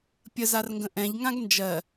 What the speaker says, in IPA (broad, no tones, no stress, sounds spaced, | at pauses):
pʲ ə z a r ŋ ɡ ə̃ ʔ ɛ̃ ʎ ŋ ã ɡ n d͡ʒ ɜ